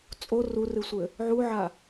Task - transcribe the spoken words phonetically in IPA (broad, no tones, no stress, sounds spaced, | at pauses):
t͡sʼ o r u r ɨ sʷ ɘ | ʕ u ʕ a